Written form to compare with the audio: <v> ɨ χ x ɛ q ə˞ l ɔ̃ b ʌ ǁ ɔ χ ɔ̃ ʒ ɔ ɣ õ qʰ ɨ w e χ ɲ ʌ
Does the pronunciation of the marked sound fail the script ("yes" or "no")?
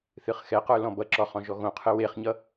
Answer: yes